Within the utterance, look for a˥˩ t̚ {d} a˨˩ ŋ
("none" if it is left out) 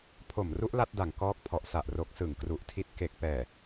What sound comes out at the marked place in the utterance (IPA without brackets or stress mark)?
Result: d